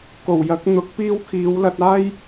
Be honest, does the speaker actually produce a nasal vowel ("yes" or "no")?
no